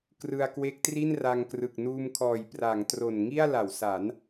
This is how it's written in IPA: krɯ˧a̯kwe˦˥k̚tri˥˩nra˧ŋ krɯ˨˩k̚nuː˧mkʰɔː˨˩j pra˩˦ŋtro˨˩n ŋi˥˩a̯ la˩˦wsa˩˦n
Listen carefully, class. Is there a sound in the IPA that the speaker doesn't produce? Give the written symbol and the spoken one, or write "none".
none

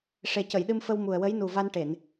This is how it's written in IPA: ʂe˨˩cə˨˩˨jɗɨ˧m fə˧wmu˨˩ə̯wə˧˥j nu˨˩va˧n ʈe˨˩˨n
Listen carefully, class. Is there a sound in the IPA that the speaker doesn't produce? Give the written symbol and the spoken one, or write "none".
none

